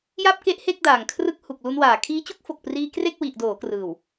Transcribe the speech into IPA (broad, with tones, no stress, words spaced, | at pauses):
ja˥˩p̚ke˥˩ʔhe˥˩k̚ daː˨˩ŋkʰrɯ˦˥k̚ hu˨˩k̚lu˧nwaː˨˩ kʰiː˦˥t͡ɕu˦˥k̚fo˨˩k̚priː˧ kre˥˩k̚wi˨˩ʔdoː˩˦krɯː˨˩w